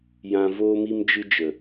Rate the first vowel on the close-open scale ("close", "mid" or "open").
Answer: open